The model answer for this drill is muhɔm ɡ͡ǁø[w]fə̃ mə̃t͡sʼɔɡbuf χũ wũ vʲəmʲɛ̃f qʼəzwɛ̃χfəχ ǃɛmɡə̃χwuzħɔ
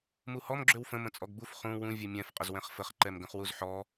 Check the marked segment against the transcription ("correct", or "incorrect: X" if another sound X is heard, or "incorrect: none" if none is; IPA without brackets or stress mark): correct